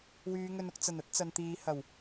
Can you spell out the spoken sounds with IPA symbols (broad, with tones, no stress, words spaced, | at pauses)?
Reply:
wyː˨˧ŋɵ˧nʊ˧k̚ t͡sɐ˨˩nɐ˥t̚ t͡sɐ˨nt̪iː˨˧ hɐ˨˩w